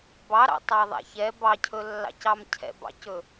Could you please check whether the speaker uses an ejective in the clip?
no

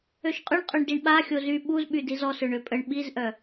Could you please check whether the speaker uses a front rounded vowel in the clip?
yes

